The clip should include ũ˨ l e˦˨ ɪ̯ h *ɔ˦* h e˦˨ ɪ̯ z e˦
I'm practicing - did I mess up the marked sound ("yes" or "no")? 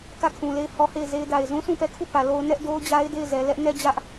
no